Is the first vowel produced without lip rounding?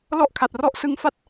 no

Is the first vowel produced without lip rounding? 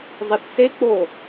yes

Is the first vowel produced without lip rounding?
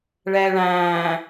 yes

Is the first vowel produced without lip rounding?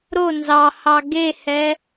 no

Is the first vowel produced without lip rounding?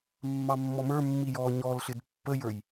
yes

